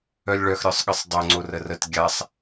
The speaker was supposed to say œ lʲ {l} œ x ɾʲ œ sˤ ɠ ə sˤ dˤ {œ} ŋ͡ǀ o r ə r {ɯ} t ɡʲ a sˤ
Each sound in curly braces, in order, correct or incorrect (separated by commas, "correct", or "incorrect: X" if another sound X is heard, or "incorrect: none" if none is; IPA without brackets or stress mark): incorrect: ɭ, correct, incorrect: ə